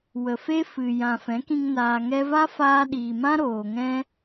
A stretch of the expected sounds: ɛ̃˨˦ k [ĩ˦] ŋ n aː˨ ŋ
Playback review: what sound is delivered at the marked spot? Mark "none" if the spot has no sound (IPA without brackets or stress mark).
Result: ĩ˧